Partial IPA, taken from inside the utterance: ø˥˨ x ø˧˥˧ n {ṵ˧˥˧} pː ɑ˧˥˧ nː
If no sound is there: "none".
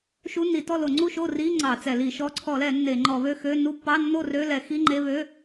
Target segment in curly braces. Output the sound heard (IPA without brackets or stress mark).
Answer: u˧˥˧